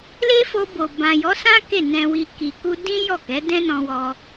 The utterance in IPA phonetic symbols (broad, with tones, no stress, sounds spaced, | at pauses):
l e˦ f o˧ b o˨ b ã˨ j ɔ˨˦ s ã˦ k e˦˨ n ɛ̃˨ w i˨ k i˨ k u˧ d ĩ˦ j ɔ˦˨ k ɛ˨˦ d ɛ̃˦ n ɔ̃˧ w ɔ˧